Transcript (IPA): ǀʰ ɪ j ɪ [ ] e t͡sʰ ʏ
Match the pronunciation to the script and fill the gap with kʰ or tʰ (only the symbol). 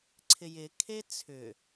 kʰ